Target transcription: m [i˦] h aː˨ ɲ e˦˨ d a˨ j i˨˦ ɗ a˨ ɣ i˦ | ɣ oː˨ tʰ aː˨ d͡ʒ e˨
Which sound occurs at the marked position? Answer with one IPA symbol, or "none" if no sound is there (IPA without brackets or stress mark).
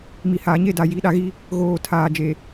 i˨